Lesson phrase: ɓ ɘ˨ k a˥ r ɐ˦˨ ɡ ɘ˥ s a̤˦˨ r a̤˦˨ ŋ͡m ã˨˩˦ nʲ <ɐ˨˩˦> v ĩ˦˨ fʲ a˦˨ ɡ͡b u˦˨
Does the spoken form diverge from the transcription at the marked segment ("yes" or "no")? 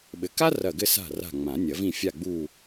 no